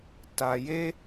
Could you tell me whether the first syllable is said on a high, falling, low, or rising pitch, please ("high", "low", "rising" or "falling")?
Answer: low